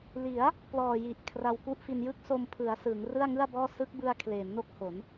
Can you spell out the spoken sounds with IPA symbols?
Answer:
l i˩˦ a̯ | p l ɔː˨˩ j i˨˩ ʔ kʰ r a˧ w k u˥˩ ʔ f i˧ n j ɯ˥˩ k̚ s o˧ m pʰ ɯ˩˦ a̯ s ɯː˩˦ ŋ r ɯ˥˩ a̯ ŋ ɯ˥˩ a̯ b ɔː˥˩ s ɯ˦˥ k̚ b ɯ˧ a̯ kʰ l eː˩˦ m n o˥˩ k̚ h o˩˦ n

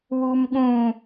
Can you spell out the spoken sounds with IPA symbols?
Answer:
w u m ɠ ũ

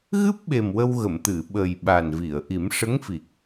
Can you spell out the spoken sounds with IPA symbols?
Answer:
ɣ ɨ˦˥ p̚ ɓ e˨˩ m w ə˧ w ɣ ə˨˩˨ m t̪ ɨ˨˩˨ ɓ ə˨˩ j ɓ a˨˩ n v i˨˩˨ ə̯ ʔ i˨˩˦ m ʂ ə˧˥ ŋ f i˨˩ k̚

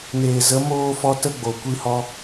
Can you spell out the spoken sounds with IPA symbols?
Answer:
n eː˨ z ə˨˦ m oː˦ f ɔ˦ t ə˦ ɡ͡b o˨ kʷ i˦ h ɔ˦

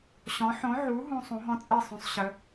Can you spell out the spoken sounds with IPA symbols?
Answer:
ɕ ɔ̃˨˥ ħ õ˨˥ ʕ u˨˥ ɦ ũ˦˥ sˤ ũ˨˥ ɦ ɔ̃˦˥ t͡sʼ ɛ˥˨ sˤ õ˨˥ sˤ ɕ ə˨˥

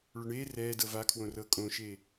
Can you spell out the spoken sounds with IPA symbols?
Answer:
ɭ ɵ ɳ eː r ɛː d ɤ v a kʰ w õ r ɤ kʼ õ ʃ eː

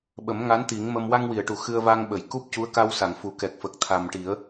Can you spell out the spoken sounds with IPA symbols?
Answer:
ɓ ə˨˩˦ m ŋ a˧˥ n t̪ i˨˩˦ ŋ m ə˧ m w a˧ ŋ w i˨˩˨ ə̯ ʈ u˨˩ x ɨ˧ ə̯ v a˧ ŋ ɓ ə˨˩˨ j k u˦˥ p̚ c u˧˥ ə̯ k a˧ w s a˨˩˨ ŋ f u˨˩˨ k ɛ˨˩ k̚ f ə˨˩ k̚ t̪ʰ a˨˩ m ʈ i˨˩˦ ə̯

